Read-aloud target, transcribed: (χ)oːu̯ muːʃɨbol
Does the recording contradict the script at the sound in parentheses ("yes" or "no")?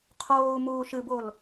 yes